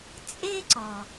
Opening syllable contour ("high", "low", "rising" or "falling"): high